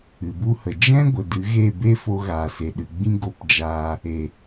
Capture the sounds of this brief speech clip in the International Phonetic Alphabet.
ɨ˨ b u˧ h ə˨ d͡ʒ ɛ̃˦ ɡʷ ə˨ d ɨ˨˦ ɣ e˦˨ b e˦ f o˧ ɣ aː˨ s e˨ ɗ ɨ˨ ɡ͡b ĩ˦ ɡ o˧ p d͡ʒ aː˧ | e˨

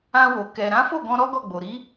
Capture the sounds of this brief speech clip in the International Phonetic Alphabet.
ã˧ w o˨ k ɛ˨ ɾ ã˨˦ f o˦˨ ɡ ɔ̃˧ ɾ ɔ˦ ɡ ɔ˦˨ ɡ͡b o˨ ɾ i˨˦

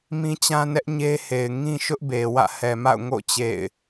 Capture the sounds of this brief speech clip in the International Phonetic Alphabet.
m ĩ˦ t͡ɕ ã˦ n ɛ˦ ʔ ɲ e˦ h e˨ ɪ̯ ŋ ĩ˦ ʃ ʊ˦ ʔ b e˨ w ä̰˦˨ h ɛ˨ m a̰˦˨ ʊ̯ ŋ o̰˦˨ t͡ɕ ḛ˦˨ ɪ̯

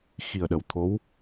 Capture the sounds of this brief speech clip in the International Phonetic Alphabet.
x i˨˩ ə̯ ɗ ə˨˩ w t̪ʰ o˧˥ w

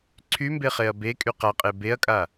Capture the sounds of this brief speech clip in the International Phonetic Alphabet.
ǀʰ y m b e χ e ɐ̯ b e kʼ y q a qʼ e b e ɐ̯ kʼ a

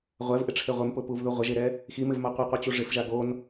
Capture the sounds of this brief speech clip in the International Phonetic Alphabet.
ʁʷ ɛ v ʔ ɪ ʈ͡ʂʰ e ʁʷ ɪ m p ʊ p u v ð u ʁʷ ɪ ʒ e ɾ ɛ | x i m ɪ v m a qʷ ɛ qʷ ɪ t͡ɕ u ʐ ɪ f ʒ a ɡ o n

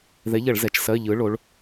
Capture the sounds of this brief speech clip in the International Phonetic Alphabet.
ð ɛ˨˥ ʎ ɐ˧˩˧ ɭ z ɛ˩˧ t͡ʃ s ɜ˧˥˧ ʎ ɯ˨˥ ɭ o˨˥ ɭ

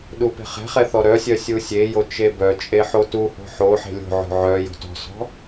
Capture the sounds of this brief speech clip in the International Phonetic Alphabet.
ɗ u p e̤ χ ɛ̤ χ ɛ θ ɔ ɾ œ sʲ œ sʲ u sʲ e j o t͡ʃ e b œ t͡ʃʼ e ħ o t u h o̤ ħ o ħ e̤ lʲ o̤ ʕ o̤ ʕ œ j o̤ t ɔ̤ s ɔ̤

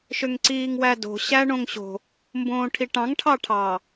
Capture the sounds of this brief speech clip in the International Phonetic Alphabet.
ʃ ø ŋ ǀ iː ŋ w æ d o̤ ɕ æ ɳ õ ŋ ɕ o̤ | m b õː ʈʰ i ʈ ɑ̃ ŋ ʈʰ ɑ ʈʰ ɑ

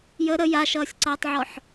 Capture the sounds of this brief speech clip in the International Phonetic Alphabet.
j ə ɾ ə j a ʃ ʌː sʲ ǀ ʌː tˤ ʕ ɔ ħ

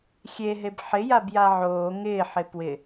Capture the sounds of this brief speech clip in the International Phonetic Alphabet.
xʲ e ɦ e b ħ ɪ j a b j a ʕ oː ŋ ɪː ħ ɪ p w ɪ

